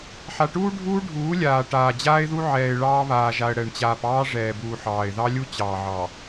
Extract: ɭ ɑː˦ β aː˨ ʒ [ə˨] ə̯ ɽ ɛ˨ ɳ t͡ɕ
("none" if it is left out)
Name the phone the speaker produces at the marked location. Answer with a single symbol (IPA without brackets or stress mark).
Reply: a˨